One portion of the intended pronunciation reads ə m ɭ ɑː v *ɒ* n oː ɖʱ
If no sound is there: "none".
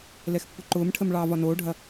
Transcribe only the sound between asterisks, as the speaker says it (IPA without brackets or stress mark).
ɒ